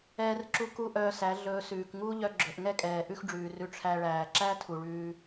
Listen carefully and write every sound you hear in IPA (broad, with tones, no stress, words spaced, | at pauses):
ɛː˧rǁu˧ ku˦ʔœː˧sæ˨˦ ɮɵː˧sʉː˨k ŋuː˦ʎœ˧ɡ͡ǁɵ˨ʔŋɛ˦ kʼɛː˨ ʔʉ˦xɖ͡ʐʉː˨rʉ˧ ʈ͡ʂʰæ˧ɭæː˨ ǁæ˦ tʰu˨ɭʉː˧